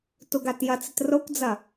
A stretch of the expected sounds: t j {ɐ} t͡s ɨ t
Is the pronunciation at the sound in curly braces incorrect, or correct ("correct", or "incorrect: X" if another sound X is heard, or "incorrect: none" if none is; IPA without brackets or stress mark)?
correct